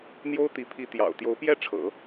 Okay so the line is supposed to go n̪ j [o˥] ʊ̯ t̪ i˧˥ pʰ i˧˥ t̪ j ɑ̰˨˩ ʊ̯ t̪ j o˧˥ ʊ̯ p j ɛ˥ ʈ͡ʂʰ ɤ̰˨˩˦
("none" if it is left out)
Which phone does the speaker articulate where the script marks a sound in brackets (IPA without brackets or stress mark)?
o˥